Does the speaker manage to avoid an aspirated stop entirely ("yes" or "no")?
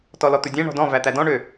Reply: yes